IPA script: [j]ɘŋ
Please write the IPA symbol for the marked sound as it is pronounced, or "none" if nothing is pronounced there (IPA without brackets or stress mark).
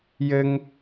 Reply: j